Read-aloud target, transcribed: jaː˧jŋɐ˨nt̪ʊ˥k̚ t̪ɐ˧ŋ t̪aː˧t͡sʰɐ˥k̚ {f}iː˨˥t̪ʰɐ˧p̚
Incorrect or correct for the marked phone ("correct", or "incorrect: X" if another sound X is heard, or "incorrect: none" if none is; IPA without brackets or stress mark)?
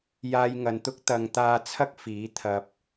correct